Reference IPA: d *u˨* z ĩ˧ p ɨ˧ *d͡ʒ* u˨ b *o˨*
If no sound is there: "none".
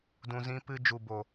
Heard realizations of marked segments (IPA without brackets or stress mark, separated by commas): ũ˨, d͡ʒ, o˨